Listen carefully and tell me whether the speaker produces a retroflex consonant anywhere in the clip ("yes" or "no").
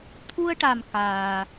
yes